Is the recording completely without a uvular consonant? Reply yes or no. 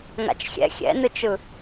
yes